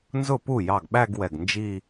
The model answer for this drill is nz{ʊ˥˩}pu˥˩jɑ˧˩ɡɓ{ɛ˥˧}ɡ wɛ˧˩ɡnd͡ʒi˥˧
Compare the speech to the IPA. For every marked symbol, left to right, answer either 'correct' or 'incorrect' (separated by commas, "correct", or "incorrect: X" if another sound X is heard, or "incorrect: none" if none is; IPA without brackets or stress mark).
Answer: correct, incorrect: æ˥˧